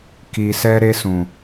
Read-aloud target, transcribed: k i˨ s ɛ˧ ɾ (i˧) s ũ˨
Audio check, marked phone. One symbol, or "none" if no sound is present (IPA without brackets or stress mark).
e˧